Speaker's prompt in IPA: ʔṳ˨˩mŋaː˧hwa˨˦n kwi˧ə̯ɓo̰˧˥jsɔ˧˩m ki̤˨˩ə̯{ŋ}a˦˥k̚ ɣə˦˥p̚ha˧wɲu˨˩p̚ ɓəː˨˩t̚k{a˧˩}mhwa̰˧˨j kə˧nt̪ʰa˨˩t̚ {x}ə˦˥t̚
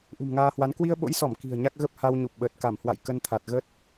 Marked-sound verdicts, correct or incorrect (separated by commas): incorrect, correct, incorrect